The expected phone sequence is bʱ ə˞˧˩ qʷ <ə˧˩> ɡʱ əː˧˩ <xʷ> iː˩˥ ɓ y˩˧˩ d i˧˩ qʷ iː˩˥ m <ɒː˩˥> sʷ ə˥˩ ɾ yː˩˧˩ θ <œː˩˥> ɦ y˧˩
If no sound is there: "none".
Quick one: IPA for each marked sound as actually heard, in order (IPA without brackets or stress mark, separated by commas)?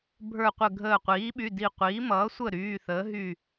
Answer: ə˧˩, qʷ, ʌː˩˥, əː˩˥